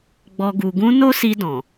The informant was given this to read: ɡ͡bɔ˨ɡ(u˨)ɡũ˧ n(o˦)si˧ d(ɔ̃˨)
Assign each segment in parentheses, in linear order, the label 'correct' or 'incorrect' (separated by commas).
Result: correct, correct, correct